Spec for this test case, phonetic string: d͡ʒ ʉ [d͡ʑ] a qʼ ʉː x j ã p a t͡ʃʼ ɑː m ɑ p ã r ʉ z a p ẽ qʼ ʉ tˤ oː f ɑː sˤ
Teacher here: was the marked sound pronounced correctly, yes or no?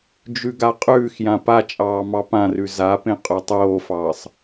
no